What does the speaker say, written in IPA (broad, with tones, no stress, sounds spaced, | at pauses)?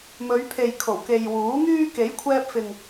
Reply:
m ɵ˨˧ ɥ pʰ e˨ j kʰ o˨˩ w k e˨ j w uː˨˥ ŋ yː˥ k e˨˥ j kʷʰ ɛː˧ p̚ f ɪ˨ ŋ